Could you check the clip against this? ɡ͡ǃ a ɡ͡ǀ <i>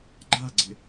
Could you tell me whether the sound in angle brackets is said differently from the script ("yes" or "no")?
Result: yes